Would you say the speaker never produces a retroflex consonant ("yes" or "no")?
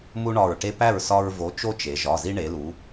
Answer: no